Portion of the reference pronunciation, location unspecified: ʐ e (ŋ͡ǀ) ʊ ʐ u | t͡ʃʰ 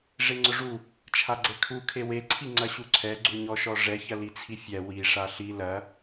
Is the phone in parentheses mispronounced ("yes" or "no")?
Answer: no